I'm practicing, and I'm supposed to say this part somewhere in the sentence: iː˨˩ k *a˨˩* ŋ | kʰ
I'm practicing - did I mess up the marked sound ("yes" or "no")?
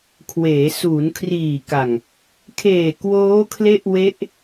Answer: no